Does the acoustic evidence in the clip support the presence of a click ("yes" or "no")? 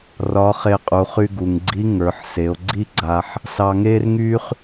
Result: yes